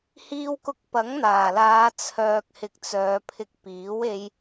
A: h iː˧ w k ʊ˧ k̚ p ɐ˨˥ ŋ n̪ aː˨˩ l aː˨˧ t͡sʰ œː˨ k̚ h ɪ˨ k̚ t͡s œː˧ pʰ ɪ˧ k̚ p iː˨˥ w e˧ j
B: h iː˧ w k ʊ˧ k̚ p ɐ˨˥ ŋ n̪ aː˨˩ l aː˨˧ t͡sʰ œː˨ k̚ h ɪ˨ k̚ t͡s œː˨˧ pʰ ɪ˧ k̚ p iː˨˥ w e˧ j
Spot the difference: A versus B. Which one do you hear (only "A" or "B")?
B